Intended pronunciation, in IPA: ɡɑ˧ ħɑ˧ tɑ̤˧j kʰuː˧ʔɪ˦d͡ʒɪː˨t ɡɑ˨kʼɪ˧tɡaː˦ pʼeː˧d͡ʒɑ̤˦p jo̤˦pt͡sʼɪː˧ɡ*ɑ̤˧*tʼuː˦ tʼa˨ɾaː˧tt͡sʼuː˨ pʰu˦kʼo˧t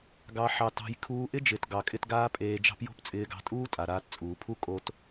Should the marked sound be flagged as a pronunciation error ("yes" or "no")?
no